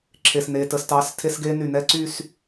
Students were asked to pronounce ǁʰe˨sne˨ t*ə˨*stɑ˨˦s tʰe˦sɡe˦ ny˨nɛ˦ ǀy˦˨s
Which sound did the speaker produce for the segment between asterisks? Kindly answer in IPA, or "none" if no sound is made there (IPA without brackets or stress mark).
ə˨